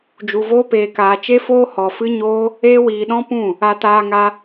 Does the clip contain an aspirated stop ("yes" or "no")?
no